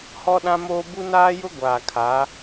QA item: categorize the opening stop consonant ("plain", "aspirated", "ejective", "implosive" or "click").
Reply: implosive